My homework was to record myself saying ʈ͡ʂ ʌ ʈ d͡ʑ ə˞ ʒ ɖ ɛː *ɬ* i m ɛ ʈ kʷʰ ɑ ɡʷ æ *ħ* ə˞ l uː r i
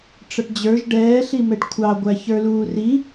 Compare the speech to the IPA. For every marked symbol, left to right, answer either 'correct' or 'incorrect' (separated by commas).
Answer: correct, incorrect